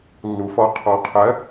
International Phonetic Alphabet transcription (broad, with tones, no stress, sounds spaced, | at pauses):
lː u˨ f ɔ˧ qʰ ɔ˧ qʰ ɜ˨˦